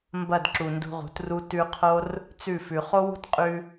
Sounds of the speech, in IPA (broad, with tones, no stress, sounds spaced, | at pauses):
m b ɐ˦˨ d ǁ u˨ n d ṳ˧ ʁ ṳ˨˦ t r u˦ t ʉ˧ qʰ o˦ r | t͡s ʉ˦˨ f ʉ˨ χ o˦ w ṳ˦ t qʼ ʉ˧